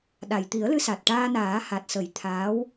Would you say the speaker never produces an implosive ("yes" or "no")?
no